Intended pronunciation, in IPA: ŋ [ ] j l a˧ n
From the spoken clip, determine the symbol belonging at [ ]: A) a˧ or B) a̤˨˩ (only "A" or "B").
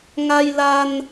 A